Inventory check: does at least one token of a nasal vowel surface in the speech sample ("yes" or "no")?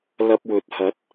no